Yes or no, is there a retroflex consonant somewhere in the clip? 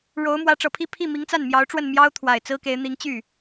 yes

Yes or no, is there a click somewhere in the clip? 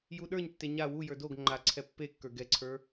yes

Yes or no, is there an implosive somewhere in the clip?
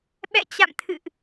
yes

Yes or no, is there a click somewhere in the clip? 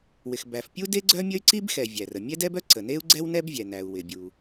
yes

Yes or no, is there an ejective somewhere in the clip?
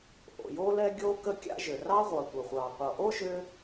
no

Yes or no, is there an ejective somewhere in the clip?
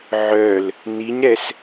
no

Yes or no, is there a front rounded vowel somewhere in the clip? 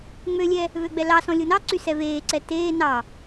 yes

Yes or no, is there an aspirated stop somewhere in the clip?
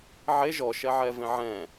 no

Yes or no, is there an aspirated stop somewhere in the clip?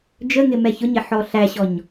no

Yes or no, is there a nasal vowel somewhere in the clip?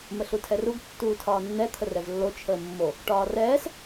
no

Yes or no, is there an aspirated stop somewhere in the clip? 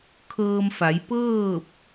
yes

